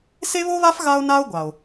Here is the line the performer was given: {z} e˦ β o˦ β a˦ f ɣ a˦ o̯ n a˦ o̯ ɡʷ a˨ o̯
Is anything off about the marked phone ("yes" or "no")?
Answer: yes